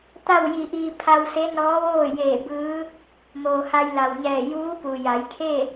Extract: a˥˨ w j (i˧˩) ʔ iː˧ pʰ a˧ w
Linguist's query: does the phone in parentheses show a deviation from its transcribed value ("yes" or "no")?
no